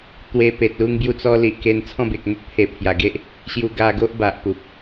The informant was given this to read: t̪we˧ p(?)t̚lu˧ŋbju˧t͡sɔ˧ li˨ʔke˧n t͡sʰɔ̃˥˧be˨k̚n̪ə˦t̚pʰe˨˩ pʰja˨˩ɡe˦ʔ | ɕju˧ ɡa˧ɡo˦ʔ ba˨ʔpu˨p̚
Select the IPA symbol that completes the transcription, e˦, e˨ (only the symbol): e˨